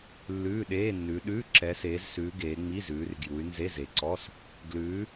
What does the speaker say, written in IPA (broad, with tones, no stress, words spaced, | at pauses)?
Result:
lːʉː˧˥˧ɗeː˧˥˧nːʉ˨˦ ɗʉː˧˥˧ǁɛ˨˦seː˨˦zsʉ˨˦ ɡeː˨˦ŋ͡mi˧˥˧zʉː˨˦r ɡju˨˦y̯nze˧˥˧ze˨˦ǀɔ˧˥˧s | ɡlʉː˨˦